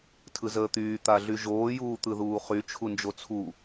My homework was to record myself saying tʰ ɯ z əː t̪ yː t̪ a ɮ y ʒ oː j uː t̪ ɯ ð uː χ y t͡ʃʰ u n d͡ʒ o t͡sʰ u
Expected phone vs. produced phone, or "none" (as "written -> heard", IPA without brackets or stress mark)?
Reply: none